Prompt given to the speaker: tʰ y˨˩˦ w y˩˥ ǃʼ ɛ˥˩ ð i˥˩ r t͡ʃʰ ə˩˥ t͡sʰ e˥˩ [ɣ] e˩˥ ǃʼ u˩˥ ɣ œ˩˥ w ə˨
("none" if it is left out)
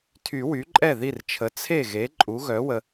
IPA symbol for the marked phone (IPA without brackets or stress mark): ɣ